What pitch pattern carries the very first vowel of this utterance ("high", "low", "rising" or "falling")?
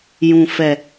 low